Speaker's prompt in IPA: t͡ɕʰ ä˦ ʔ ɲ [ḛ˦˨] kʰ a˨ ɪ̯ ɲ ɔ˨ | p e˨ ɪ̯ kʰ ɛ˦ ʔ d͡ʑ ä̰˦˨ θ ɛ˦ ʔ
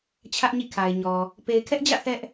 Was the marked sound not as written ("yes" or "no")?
yes